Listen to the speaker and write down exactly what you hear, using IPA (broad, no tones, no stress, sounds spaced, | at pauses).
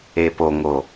e p o ŋ o